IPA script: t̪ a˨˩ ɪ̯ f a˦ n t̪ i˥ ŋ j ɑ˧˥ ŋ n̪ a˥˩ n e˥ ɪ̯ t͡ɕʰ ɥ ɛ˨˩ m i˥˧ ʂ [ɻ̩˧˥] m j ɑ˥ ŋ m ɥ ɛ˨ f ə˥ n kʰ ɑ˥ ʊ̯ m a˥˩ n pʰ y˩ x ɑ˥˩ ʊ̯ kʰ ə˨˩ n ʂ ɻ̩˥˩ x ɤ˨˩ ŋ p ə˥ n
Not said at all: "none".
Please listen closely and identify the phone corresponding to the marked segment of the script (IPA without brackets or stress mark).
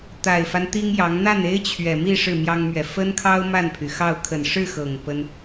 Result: ɻ̩˥˩